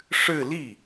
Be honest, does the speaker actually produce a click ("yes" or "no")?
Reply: no